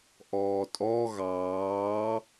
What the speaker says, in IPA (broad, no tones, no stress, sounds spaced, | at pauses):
ʔ ɔː tʼ ɔ ɣ ɑː